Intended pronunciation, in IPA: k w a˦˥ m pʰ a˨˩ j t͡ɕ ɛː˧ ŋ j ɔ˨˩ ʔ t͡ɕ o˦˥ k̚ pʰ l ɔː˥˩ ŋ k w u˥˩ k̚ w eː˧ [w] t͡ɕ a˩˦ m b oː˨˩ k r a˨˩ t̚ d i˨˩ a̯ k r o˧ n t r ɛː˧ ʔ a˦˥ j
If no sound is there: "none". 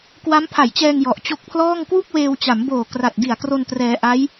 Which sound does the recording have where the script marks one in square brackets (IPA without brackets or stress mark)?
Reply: w